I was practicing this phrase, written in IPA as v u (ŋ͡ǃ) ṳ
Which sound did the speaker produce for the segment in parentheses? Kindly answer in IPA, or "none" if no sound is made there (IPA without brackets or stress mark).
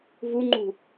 ŋ͡ǃ